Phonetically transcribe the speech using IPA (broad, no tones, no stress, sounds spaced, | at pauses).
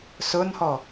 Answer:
s ʊ n h ɔ